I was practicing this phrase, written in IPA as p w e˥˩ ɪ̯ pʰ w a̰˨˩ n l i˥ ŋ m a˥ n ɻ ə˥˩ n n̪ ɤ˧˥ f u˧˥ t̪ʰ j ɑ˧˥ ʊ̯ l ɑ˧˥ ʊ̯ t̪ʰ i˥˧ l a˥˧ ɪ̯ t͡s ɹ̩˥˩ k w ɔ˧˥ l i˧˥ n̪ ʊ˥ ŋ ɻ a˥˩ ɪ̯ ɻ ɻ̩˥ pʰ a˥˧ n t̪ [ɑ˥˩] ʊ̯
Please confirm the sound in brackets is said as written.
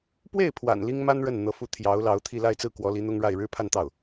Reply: yes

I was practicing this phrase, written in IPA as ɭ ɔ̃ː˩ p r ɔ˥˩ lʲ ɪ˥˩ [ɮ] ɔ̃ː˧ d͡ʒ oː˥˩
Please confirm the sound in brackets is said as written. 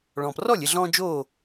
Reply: yes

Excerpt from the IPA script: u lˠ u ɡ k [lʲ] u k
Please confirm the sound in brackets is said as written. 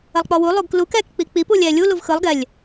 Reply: no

